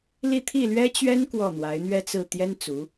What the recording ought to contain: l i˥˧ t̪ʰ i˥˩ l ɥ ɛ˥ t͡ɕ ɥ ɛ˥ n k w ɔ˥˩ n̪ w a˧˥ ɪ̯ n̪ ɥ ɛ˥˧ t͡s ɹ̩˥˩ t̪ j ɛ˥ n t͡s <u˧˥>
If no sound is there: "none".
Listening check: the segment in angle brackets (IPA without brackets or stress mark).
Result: u˧˥